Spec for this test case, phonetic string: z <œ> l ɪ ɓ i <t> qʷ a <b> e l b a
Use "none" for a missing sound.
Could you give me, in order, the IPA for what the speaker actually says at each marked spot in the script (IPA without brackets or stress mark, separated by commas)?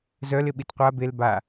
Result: œ, t, b